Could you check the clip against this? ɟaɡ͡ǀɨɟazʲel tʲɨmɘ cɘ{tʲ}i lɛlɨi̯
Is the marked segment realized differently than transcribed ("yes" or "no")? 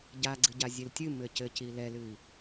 yes